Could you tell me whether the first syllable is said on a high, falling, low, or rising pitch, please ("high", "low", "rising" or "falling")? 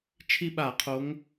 high